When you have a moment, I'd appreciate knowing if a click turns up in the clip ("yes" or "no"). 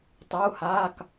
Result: no